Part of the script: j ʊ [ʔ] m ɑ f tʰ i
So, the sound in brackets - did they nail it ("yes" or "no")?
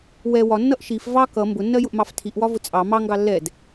yes